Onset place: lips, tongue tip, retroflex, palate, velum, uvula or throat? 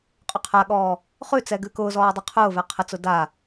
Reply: uvula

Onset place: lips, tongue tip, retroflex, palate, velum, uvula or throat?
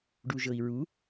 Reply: retroflex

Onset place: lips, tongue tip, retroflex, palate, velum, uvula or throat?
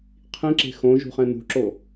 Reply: uvula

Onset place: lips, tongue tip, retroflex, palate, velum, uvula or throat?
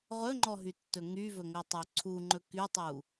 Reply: uvula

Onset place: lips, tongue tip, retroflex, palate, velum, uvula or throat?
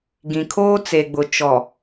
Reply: velum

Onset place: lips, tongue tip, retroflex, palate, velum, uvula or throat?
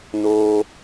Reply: tongue tip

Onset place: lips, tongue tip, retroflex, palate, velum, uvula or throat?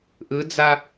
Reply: throat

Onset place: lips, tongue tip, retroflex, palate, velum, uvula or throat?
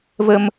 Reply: lips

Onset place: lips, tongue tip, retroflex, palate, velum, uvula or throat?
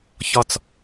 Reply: palate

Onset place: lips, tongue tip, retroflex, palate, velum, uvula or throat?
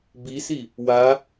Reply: lips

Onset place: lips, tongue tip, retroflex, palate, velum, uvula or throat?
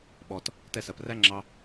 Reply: lips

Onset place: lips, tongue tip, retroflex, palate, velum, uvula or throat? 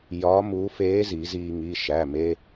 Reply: palate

